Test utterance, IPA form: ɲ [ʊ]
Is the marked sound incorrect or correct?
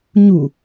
incorrect